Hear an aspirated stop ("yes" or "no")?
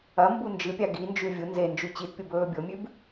no